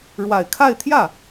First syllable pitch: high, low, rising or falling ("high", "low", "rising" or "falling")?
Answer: low